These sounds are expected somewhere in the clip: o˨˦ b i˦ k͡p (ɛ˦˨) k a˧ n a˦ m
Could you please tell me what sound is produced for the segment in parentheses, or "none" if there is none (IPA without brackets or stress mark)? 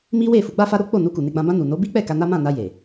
ɛ˦˨